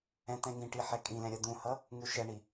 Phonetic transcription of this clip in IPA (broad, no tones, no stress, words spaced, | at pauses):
ɛ̃t̪ɛ̃ŋĩʈi ħɛkʼĩlɛ̃ ɾʲʌd̪ũhʌ | ŋuʃɛɳi